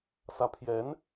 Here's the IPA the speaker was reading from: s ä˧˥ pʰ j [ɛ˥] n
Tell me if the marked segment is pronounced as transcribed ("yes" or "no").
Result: no